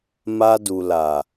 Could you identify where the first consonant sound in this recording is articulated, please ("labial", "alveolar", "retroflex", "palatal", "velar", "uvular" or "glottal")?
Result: labial